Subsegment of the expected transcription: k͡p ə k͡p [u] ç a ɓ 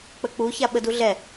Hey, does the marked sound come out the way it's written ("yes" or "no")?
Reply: yes